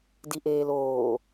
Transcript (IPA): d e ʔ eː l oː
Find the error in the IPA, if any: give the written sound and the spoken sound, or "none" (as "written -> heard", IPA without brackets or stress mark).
e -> i